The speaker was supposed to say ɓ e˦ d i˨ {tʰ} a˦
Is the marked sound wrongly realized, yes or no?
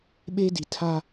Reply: no